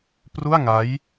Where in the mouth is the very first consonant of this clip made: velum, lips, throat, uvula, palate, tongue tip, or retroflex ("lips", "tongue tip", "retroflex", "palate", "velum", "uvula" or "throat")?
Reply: lips